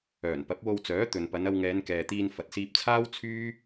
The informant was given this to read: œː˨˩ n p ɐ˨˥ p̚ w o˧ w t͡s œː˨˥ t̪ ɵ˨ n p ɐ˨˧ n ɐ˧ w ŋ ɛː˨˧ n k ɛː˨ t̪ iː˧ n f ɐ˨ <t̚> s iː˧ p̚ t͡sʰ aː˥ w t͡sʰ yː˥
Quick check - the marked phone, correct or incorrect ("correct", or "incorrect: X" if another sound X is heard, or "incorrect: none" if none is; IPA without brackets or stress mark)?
correct